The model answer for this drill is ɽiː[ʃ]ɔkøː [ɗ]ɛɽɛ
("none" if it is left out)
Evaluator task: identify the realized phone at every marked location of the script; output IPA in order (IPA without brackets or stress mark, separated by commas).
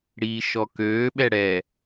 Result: ʃ, ɓ